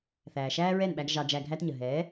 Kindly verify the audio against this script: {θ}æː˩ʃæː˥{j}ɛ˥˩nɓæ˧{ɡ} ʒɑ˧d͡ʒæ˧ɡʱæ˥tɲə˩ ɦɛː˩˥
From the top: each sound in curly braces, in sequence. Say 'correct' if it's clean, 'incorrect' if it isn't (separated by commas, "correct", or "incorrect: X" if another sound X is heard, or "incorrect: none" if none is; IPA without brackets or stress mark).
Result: correct, incorrect: ɹ, correct